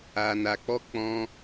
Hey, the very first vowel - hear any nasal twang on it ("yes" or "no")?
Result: no